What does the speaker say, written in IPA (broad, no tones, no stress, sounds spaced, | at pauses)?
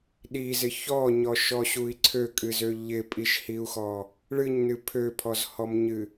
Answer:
ɗ i z ɪ ç ɔ ɲ ɔ ʃ ɔ ɕ u i̯ ǀʰ ø kʼ ɨ z ø ʎ ɪ pʼ i ʃ h i u̯ x ɔ | ɭ ɨ ɲ n ɨ pʰ ø pʰ ɔ z h ɔ m ɲ ɨ